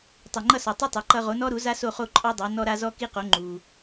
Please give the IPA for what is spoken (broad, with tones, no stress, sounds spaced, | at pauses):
tˤ ɵ˩ ŋ͡ǃ ʌ˥˩ s ɔ˩ tˤ ʌ˥ tˤ a˩ ǃ ʌ˧ ʁ o˩˥ n ɔ˥ ɾ u˩˥ z a˥ s o˥˩ χ o˥˩ ǃʼ ɔ˥ dˤ a˩˥ n ɔ˧ ɾ a˧ z ɔ˥ k i˥ q o˩˥ ŋ͡ǃ u˩